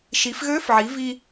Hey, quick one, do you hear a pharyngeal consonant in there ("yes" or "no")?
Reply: yes